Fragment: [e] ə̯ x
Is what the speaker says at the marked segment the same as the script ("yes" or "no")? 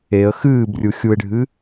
yes